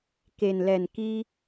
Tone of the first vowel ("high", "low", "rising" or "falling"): low